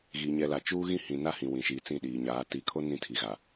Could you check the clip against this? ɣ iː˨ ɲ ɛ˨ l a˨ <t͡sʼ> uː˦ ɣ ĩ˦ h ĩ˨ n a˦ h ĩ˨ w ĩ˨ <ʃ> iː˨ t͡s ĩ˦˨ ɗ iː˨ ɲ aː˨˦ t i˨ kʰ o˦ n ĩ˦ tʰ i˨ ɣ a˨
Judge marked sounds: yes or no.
no, yes

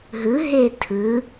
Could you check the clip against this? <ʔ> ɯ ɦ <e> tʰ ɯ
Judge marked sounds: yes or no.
no, yes

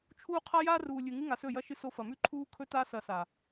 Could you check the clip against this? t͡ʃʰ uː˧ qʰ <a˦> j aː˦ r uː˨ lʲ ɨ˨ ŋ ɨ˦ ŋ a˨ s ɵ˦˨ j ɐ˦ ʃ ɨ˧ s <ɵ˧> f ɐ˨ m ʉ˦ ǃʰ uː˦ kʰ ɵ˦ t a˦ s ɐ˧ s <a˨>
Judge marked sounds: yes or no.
yes, no, yes

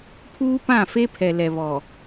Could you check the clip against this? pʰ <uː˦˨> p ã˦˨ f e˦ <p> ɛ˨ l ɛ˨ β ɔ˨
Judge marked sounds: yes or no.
no, no

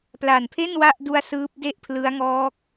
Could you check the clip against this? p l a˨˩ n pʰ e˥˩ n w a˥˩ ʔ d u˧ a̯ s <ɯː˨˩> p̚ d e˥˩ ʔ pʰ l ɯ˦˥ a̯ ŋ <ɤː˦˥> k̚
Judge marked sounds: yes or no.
no, no

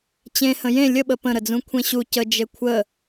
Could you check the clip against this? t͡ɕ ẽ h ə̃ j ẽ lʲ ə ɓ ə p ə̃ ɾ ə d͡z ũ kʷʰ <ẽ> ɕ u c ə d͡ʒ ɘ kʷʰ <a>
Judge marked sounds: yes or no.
yes, no

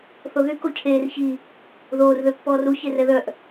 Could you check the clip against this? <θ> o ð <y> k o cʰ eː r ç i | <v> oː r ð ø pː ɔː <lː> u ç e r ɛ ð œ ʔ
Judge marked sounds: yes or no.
yes, yes, no, no

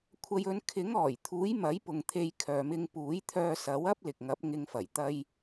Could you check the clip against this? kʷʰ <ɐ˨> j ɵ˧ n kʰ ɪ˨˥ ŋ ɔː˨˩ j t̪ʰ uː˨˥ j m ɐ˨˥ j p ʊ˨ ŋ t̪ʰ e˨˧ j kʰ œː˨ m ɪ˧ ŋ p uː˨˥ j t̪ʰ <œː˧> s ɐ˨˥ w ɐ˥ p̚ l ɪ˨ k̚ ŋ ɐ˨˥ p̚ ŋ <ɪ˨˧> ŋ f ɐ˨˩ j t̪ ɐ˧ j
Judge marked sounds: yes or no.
no, yes, yes

